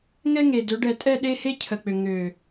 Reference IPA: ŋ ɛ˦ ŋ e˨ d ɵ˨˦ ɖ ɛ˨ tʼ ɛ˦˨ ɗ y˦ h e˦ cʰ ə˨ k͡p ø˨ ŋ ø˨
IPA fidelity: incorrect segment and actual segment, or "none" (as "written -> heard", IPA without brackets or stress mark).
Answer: y˦ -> e˦